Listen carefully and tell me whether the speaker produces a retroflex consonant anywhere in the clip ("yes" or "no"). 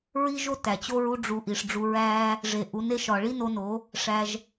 yes